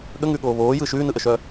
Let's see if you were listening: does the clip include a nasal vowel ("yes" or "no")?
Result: no